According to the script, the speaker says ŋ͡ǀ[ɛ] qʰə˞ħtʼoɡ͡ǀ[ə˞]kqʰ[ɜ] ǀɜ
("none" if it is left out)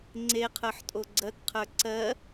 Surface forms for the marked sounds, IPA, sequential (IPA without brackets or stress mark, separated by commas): e, ɜ, ə˞